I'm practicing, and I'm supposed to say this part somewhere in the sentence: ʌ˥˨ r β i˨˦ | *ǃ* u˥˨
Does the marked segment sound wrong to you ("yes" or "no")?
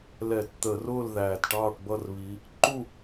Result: no